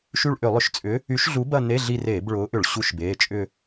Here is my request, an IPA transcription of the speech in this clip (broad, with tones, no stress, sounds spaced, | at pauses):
ʃ y˦˨ ɭ ʔ ʏ˧˩˧ lˠ ʏ˧˩˧ ʃ t͡sʼ ʏ˨˥ | y˨˥ ʃ ɮ u˨˥ b ɐ˦˨ n e˧˥˧ ɮ i˦˨ r eː˧˩˧ b ɭ ʊː˨˥ ʔ ʏ˧˩˧ ɭ ɕ u˧˥˧ ʃ b eː˩˧˩ t͡ʃʼ ʏ˦˨